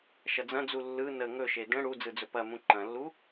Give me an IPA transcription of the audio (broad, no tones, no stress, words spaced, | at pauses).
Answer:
ʃɐd͡zɐ̃d͡zu lːɯ nə ŋɵʃe də̃ ɽu d͡zɯd͡zɵpɐmũ ǃɐ̃lːu